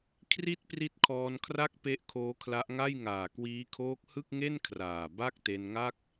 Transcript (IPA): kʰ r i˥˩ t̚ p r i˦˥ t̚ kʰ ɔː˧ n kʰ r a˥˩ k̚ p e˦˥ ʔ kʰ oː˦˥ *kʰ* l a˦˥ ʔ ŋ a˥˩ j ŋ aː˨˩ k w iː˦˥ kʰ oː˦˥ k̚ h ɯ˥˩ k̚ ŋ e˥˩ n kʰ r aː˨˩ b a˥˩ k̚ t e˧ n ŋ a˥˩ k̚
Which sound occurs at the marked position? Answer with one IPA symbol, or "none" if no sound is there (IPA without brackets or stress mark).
kʰ